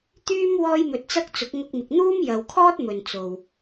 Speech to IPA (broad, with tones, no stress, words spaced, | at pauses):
t̪yː˥m wɔː˥jmɵ˧t̚t͡sɐ˥k̚ t͡sʊ˨˥k̚ŋʊ˧k̚mɪ˨k̚ n̪uː˥mjɐ˨wkʰɔː˥t̚ mɵ˨nt͡so˨w